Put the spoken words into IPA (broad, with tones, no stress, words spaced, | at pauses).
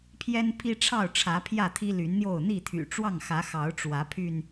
pʰjɛ˦npʰi˦ʈ͡ʂʰɑ˥˨ʊ̯ʈ͡ʂʰä˨˦ pʰjä˥˨t̪ʰi˦ly˨˦nn̪jo˥˨ʊ̯ n̪i˥˨t̪ʰy̰˨˩ʈ͡ʂwɑ˥˨ŋxä˨˦ xɑ˨˦ʊ̯ʈ͡ʂwä˨˦pʰy˧n